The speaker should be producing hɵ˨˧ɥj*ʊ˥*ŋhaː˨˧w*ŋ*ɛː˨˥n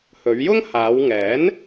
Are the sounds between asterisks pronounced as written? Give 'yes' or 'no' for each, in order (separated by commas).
yes, yes